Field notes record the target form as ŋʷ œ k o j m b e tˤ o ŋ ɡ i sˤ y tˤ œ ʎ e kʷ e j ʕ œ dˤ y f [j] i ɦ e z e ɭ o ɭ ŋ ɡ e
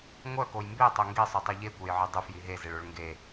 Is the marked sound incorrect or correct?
correct